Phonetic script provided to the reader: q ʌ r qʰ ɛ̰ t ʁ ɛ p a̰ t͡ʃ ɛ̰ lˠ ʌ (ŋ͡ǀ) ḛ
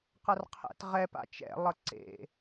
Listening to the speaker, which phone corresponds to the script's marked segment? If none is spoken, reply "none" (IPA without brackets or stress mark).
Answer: ǀ